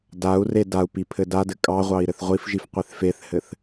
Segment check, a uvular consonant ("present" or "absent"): present